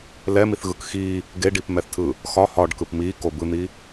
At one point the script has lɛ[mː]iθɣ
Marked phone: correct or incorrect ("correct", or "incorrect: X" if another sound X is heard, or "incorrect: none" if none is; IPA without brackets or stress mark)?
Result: incorrect: m